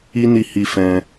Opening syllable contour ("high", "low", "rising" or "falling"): high